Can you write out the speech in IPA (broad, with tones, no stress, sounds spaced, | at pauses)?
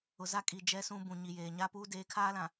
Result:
ʊ˨ z a˦˨ kʼ i˨ d͡ʒ ɛ˦ s ũ˦ b ũ˨ ɲ i˨ j eː˨ ɲ a˦ p uː˦ d eː˨˦ kʰ aː˦ l ã˨